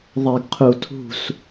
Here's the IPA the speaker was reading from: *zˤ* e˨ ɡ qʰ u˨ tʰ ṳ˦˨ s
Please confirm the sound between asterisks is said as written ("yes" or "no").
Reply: no